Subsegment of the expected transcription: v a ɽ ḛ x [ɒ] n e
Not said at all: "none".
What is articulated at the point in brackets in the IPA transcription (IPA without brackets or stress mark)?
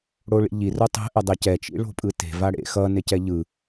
ʌ